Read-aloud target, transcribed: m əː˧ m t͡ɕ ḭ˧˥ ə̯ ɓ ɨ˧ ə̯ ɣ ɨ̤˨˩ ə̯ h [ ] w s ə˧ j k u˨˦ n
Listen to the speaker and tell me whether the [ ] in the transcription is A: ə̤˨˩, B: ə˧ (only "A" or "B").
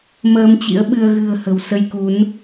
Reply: A